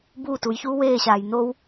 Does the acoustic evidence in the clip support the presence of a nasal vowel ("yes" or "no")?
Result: no